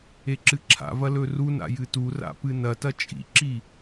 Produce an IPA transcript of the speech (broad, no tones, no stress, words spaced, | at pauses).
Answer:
eǁɨǁʰa̰vɐ lɵruna̰ jɨtura̰ pɨnɐtɐ t͡ʃʼḭǁi